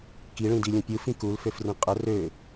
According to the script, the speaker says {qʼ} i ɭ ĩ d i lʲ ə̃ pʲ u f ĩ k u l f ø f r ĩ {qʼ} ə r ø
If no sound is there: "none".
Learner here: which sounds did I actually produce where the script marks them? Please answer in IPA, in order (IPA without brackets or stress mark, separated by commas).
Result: k, qʼ